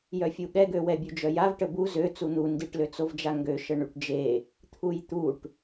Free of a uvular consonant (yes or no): yes